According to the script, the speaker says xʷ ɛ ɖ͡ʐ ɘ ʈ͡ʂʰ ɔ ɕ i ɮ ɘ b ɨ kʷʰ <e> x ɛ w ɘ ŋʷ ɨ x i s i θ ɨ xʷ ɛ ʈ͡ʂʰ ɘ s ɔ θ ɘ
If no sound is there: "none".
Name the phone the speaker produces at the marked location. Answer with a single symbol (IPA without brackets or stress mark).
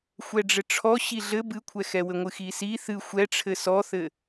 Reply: ɛ